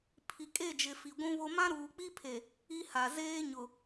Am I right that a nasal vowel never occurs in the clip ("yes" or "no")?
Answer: no